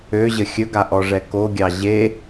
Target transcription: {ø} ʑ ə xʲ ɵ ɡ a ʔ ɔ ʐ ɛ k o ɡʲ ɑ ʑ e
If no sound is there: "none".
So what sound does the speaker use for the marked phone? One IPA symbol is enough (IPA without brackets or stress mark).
ø